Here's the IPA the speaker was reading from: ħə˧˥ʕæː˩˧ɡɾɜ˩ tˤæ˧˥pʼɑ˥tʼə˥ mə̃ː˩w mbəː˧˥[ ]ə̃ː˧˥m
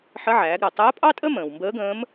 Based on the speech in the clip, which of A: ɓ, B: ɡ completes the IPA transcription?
B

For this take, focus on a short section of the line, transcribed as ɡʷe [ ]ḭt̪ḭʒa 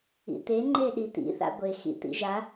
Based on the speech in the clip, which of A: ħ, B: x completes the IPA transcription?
B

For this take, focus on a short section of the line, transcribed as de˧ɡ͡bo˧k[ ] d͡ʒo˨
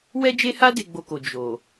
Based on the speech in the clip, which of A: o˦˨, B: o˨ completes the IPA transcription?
B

